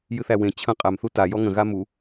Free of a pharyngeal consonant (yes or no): yes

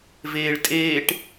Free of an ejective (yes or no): no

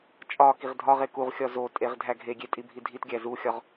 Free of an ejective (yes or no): no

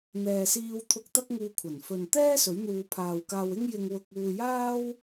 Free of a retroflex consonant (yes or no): yes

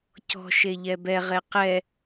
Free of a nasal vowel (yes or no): yes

